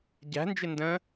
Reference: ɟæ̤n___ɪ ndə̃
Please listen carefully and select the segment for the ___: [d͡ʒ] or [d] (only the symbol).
d͡ʒ